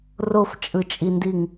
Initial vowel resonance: oral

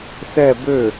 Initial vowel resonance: oral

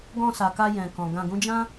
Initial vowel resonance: nasal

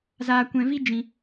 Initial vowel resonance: oral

